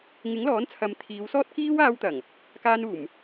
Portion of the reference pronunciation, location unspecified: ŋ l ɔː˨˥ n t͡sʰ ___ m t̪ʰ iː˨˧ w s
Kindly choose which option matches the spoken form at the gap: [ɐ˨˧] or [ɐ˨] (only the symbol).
ɐ˨˧